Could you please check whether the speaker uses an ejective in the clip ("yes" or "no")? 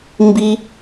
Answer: no